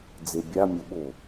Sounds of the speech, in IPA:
d͡zebʲa mʲoɓo

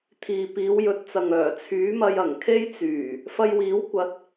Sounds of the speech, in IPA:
t̪ʰiː˨piː˨˧wjɵ˨˥t̚t͡sɐ˨ŋ œː˨˩t͡sʰyː˨˥mɐ˧j ɐ˨˩ŋkʰe˥jt͡syː˨˩ | fɐ˧jwiː˨˥wkʷɐ˨˥t̚

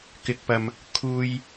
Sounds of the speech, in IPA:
kɪ˨k̚pɐ˨m | kʰuː˧j

